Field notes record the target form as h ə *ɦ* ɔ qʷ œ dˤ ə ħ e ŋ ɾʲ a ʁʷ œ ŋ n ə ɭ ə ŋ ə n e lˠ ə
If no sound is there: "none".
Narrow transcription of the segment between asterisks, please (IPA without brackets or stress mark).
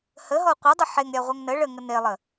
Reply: ɦ